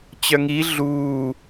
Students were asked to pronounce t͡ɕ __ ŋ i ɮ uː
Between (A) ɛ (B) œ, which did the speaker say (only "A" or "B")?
B